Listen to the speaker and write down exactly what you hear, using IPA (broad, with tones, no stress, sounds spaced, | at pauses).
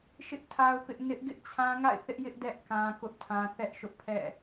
ʃ ɪ˦ ʔ tʰ a˦ ʊ̯ p ɪ˦ ʔ n ɪ˦ ʔ ɡ ɪ˦ ʔ t͡ɕʰ ã˦ ŋ a̰˦˨ ɪ̯ θ ɪ˦ ʔ j ɪ˦ ʔ d ɛ˦ ʔ k ã˦ k ʊ˦ ʔ tʰ ã˦ θ ɛ˦ ʔ ʃ ʊ˦ ʔ pʰ ɛ̰˦˨